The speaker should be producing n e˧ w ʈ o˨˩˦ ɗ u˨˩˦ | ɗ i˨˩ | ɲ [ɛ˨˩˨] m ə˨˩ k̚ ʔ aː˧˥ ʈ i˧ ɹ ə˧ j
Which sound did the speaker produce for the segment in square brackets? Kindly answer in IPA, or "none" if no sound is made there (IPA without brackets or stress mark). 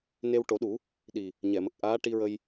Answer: ɛ˨˩˨